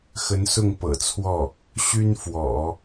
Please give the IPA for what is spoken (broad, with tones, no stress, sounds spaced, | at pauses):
x ə˧˥ n s ʊ˥˩ ŋ p ɤ̰˨˩ t͡sʰ w ɔ˥˩ | ɕ y˥ n f w ɔ̰˨˩˦